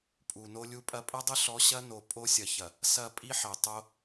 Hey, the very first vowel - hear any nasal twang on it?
no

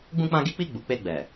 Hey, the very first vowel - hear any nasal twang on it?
yes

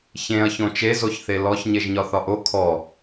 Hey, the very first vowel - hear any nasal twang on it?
yes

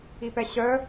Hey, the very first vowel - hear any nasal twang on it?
no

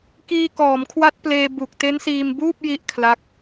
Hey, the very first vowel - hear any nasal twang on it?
no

